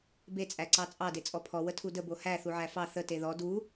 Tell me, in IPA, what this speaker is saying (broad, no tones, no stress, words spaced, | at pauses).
be t͡sʼæǀɑt͡sʼɑ det͡sʼɔpʰɔ wətʰudə bohæ θuʕæfɑ θə teðɔ du